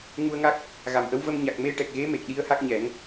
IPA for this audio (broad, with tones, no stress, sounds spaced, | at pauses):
ŋ u˧ ə̯ ŋ a˦˥ k̚ | ɣ a˨˩ m ʔ ə˧˥ w v ə˧ m ɲ a˨˩ k̚ m e˧ ʈ ɛ˨˩ k̚ ɣ e˧˥ m e˨˩ k̚ ɗ i˧˥ ə̯ h a˦˥ k̚ ɲ ɛ˨˩˦ ŋ